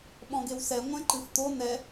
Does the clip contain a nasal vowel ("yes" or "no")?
yes